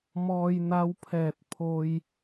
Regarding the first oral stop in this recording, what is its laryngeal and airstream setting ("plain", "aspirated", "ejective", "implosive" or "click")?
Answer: aspirated